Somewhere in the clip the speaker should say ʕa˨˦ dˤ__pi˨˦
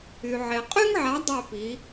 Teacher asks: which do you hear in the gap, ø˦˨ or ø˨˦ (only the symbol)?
ø˦˨